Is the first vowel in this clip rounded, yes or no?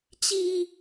no